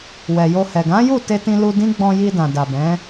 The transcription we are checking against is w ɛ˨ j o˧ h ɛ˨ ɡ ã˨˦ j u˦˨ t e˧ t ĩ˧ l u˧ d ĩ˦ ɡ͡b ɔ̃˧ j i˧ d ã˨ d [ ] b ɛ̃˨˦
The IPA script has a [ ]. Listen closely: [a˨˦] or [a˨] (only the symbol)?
a˨